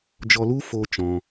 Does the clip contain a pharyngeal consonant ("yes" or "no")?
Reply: no